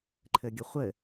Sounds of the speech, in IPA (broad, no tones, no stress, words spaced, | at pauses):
ǃʰɘɡʲəχʷɘ